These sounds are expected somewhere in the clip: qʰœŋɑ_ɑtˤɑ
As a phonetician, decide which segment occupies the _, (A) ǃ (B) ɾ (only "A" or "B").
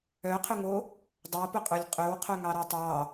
B